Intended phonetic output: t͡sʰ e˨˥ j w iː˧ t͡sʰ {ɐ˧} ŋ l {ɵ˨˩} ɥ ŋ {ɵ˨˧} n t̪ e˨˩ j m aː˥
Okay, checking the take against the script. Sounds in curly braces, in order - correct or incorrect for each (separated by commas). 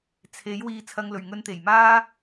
correct, correct, incorrect